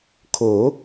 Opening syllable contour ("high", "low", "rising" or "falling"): rising